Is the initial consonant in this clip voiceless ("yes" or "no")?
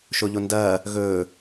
yes